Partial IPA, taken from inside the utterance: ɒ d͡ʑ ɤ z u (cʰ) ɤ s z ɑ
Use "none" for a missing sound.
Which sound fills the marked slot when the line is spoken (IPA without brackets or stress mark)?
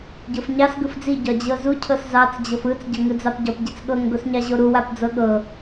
cʰ